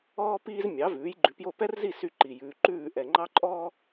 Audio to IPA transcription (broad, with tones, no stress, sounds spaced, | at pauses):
ɔː˥ p iː˥ z mʲ ɑ˩˥ v ʉː˩˥ j ɡ͡ǃ ʉ˩˥ p j o˥˩ p ɛ˥ r z i˥˩ s y˥˩ ǃ i˩ j ʉː˩ ǃ ʉː˥˩ ʔ ɛ˩ ŋ͡ǃ ɑ˥ ǃʼ ɔː˥